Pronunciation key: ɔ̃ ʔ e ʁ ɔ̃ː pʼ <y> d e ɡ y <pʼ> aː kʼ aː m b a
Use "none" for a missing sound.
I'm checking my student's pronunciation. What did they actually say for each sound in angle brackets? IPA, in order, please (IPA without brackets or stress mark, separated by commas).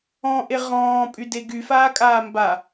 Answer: y, f